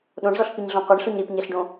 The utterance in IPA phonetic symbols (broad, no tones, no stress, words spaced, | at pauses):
ɗõɳzɔɬpiɲɮɔ̃ qʷɛɳɬoɲ ɾipɲɛɬɖõ